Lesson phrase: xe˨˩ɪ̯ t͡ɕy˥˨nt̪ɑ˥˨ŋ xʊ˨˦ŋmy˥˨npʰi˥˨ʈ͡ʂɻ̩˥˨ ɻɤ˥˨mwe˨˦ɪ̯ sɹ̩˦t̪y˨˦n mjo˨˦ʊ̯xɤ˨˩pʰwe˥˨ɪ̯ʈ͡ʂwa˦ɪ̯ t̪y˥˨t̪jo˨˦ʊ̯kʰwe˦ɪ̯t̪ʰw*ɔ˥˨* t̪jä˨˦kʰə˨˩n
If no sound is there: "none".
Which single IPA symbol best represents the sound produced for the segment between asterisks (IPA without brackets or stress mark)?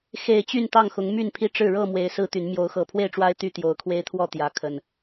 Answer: ɔ˥˨